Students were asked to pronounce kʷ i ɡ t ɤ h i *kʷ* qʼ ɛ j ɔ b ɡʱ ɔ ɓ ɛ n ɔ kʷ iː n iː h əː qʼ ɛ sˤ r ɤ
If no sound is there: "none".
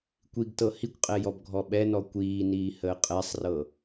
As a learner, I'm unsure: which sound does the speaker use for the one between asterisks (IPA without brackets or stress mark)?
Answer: kʷ